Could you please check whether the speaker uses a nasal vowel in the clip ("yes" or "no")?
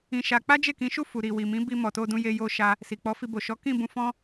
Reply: yes